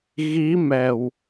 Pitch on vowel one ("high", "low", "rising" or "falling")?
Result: rising